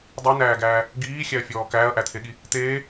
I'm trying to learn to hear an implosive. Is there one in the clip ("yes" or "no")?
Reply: yes